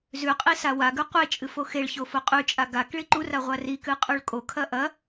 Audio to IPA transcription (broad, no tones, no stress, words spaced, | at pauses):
zʉqʼi sawaɡʉ qʷet͡ʃʼɨf oxeɭço foqʼʉt͡ʃʼa ɡak ɭiǃura ʁʷarikɨ qʼʉɭkʼokʰɐ ʔɐ